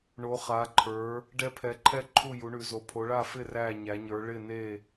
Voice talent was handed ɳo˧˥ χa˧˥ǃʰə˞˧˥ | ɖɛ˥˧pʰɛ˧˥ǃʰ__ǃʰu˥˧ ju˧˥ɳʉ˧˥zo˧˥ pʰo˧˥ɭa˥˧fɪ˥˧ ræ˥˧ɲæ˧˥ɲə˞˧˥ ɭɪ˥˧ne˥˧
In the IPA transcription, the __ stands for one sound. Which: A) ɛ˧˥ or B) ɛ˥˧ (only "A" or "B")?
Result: B